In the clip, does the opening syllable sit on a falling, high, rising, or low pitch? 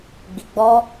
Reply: low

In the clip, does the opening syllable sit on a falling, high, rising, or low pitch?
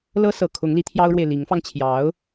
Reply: high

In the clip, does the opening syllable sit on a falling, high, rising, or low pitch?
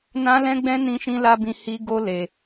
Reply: high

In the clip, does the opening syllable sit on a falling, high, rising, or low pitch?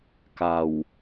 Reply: low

